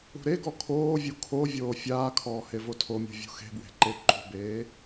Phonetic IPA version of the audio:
ṳ ɾ e ɡ ɔ kʰ oː vʲ u kʰ o vʲ oː fʲ aː kʰ ɔː h e v o tʰ o mʲ ṳ vʲ ṳ x e̤ b w e̤ ǃ e ǃ ṳ b eː

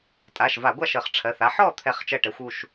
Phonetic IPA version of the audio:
tʼ a˩˧˩ ʃ v a˧˩˧ ɡʷ a˥˨ ʃ ə˧˩˧ χ ʈ͡ʂʰ ɜ˩˧˩ θ a˧˥ ħ ɔ˥˨ t̪ʰ ɛ˥˨ χ t͡ʃ ɜ˥˨ ʈ ɛ˧˥ xʷ u˩˧˩ ʃ

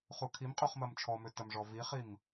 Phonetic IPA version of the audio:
χ u kʰ i m qʼ o χ m ɐ m t͡ʃʰ ɔ m ø t ɐ m ʐ ɔ v i χ i m

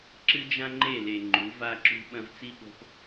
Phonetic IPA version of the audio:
ǁ ɨ˦ d͡ʒ ã˦ ŋ͡ǃ e˦˨ l e˨ ŋ͡ǃ u˨˦ v a˦ ǁ ṳ˦ ɓ ɐ̃˧ v t͡s i˦ ɓ o̤˧ p

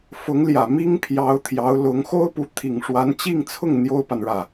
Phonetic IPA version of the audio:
f ʊ˧˥ ŋ l j ä˨˩ m i˥ ŋ pʰ j ɑ˧˥ ʊ̯ t̪ʰ j ɑ˧˥ ʊ̯ l ʊ˧˥ ŋ x o˥ ʊ̯ p u˧˥ t̪ʰ i˨˩ ŋ ʂ w a˧˥ n t͡ɕ i˥˧ ŋ t͡sʰ ʊ˥˩ ŋ n̪ j o˥ ʊ̯ p a˨ n ɻ ä˥˩

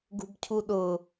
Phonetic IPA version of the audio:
ɡ ṳ b cʰ u ɗ ʊ

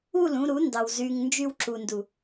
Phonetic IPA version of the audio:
u˦˨ l ũ˧ ɾ u˨˦ n d ɑ˨ w z y˧ ŋ n d͡ʒ y˧ w ǁ u˨ n d u˨

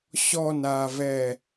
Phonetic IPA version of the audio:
ɕ ɔ n a v ɛ

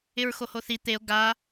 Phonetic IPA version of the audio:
ɪ ɹ x o h o θ i t̪ e o̯ ɡ a

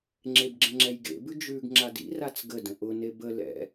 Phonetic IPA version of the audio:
ŋ͡ǁ e b ɡ͡ǁ ə̃ ŋ͡ǁ ɛ j ɡ ḛ b ʉ d͡ʒ ʉ ɡ ŋ͡ǁ a d ḭ r a t͡s ɡ ə d ə̃ ʔ ʊ n e b ə l ɛ̰

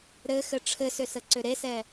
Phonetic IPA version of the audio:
ɾ ɘ x ɘ ʈ͡ʂʰ ɘ s ʏ s ə ǀ ʏ ɾ e s ɛ

